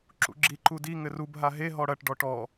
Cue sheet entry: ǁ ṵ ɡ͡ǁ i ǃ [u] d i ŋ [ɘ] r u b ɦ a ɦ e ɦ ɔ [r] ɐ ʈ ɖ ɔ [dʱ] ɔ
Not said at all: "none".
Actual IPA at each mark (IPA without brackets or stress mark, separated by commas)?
u, ɘ, ɽ, ʈ